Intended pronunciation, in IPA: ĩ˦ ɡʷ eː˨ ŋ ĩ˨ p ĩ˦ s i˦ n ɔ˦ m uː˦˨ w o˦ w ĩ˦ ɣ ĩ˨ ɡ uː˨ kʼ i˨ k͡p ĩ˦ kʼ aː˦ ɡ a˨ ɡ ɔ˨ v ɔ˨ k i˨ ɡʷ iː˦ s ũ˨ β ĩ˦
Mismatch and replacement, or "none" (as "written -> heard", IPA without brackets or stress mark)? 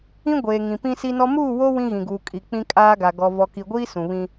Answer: none